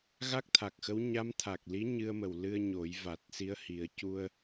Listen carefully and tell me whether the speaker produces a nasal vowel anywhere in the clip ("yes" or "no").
no